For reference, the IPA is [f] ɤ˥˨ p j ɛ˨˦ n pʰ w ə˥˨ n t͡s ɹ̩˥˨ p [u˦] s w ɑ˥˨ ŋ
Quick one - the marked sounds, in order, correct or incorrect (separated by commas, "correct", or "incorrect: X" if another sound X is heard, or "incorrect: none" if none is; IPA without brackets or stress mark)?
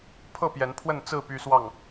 incorrect: pʰ, incorrect: y˦